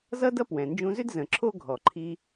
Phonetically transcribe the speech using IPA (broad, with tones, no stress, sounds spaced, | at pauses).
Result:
z ʌ˥ d ʌ˥ p w ɛ̃˩ n d͡ʒ ũ˧ z ʏ˥ d z ə̃˩ ǁʰ o˥ ɡʱ ɔ˩ ǃʰ i˧